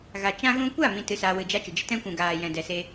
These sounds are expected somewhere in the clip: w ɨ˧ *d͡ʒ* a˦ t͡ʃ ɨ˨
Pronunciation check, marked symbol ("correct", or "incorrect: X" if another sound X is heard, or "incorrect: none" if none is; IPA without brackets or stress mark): correct